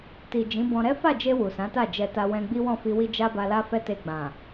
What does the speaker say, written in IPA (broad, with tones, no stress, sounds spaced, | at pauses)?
t i˨ d͡ʒ ĩ˨˦ b ɔ̃˧ ɾ ɛ˦ f a˦˨ d͡ʒ e˧ w u˨ s ã˨˦ t a˦˨ d͡ʒ ɛ˧ t a˧ w ɛ̃˧ ɡ͡b i˦ w ɔ̃˦˨ f i˧ w i˦ d͡ʒ a˦ b a˧ l a˦ f ɛ˦ t e˧ ɡ͡b ã˨